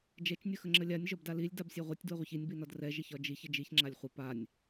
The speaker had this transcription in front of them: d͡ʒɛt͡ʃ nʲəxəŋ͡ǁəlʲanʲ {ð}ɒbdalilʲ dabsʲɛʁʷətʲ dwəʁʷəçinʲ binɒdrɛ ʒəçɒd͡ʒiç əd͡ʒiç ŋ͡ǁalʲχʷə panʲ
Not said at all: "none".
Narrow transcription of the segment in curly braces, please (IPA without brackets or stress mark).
ʒ